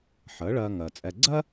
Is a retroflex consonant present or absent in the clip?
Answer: present